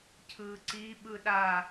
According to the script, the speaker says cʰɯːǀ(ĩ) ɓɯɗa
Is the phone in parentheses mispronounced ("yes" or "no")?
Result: yes